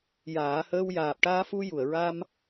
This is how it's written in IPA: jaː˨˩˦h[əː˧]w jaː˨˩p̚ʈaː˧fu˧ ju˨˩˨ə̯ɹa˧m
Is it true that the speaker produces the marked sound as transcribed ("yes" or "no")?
yes